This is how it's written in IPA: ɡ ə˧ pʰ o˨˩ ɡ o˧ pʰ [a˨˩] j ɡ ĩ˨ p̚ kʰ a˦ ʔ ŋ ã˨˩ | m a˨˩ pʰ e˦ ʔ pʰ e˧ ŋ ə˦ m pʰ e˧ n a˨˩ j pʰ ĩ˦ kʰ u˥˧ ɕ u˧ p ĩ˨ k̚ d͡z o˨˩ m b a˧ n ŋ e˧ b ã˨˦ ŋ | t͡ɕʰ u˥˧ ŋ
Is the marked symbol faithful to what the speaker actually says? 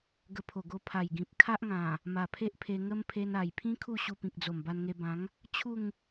yes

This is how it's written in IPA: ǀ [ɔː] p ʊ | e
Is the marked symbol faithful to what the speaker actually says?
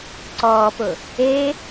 yes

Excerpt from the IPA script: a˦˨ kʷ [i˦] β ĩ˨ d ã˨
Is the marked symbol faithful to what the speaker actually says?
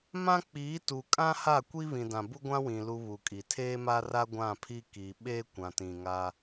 yes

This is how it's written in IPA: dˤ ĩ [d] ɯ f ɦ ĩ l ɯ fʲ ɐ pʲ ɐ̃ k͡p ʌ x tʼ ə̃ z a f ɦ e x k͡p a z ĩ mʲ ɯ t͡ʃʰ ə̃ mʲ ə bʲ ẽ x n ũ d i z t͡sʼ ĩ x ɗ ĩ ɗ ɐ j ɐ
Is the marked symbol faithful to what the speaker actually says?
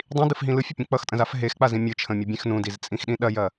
yes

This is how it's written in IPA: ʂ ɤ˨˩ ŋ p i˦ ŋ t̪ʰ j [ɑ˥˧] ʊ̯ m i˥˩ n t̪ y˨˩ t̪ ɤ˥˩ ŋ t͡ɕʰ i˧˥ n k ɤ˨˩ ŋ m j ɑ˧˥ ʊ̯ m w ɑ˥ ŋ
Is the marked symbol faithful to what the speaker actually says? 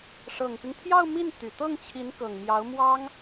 yes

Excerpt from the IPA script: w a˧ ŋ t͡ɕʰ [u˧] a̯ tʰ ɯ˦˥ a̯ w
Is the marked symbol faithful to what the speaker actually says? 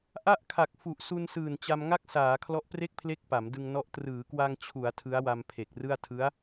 no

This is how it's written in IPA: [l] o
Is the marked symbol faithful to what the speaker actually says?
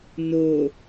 no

